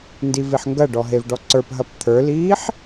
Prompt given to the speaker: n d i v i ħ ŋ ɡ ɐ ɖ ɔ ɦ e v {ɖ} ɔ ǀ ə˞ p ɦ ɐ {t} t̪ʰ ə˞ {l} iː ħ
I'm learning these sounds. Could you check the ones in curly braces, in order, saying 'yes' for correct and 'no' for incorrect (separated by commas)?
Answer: yes, no, yes